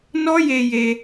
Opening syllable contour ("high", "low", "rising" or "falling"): high